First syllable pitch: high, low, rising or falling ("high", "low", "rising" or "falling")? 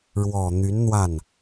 low